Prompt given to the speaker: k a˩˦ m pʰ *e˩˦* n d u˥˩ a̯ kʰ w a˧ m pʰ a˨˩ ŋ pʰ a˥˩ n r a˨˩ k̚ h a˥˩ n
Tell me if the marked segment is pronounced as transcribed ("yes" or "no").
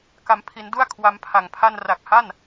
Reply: no